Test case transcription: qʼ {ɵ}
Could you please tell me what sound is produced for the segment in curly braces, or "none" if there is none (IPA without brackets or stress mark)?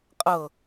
ɤ